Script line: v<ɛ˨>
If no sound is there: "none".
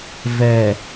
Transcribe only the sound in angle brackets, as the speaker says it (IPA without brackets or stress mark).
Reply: ɛ˨